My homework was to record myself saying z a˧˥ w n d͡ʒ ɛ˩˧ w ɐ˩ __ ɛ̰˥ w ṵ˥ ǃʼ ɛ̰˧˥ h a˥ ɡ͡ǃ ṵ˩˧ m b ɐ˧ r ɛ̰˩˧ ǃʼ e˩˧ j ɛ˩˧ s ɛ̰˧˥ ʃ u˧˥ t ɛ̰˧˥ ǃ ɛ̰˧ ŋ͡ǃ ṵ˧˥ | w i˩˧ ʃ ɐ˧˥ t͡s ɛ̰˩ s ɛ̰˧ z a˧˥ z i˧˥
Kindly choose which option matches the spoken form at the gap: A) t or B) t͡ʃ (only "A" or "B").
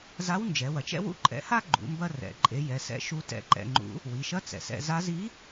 B